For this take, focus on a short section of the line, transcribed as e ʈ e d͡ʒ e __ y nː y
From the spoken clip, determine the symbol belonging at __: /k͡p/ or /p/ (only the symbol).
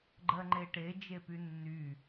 p